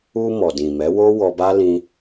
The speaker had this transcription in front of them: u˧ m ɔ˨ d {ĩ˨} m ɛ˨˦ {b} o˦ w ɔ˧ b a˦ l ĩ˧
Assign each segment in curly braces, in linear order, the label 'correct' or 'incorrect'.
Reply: correct, incorrect

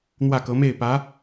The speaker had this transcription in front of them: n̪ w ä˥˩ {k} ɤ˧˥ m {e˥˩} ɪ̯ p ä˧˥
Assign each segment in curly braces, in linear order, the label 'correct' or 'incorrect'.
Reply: correct, correct

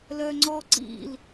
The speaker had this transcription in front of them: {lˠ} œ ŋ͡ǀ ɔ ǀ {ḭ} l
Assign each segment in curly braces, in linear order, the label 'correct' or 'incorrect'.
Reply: incorrect, correct

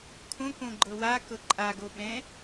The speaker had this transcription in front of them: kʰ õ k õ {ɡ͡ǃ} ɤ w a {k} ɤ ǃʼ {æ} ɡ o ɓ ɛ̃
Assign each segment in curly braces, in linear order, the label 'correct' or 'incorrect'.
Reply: correct, correct, incorrect

